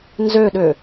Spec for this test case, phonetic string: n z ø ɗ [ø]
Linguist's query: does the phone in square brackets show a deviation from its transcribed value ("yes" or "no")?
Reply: no